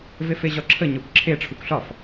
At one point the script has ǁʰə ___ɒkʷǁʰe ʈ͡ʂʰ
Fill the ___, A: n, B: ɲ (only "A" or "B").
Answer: B